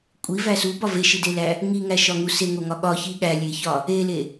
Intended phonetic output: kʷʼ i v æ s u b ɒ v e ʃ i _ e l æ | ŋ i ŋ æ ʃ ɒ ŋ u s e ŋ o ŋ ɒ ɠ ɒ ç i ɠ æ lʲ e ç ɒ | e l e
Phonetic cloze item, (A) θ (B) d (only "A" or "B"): B